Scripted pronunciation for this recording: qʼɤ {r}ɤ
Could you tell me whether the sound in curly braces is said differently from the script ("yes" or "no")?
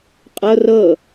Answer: no